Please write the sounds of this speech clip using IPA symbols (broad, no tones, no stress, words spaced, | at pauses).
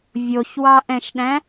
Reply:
vʲoçwɑʔɛ̃ʃɗæ̃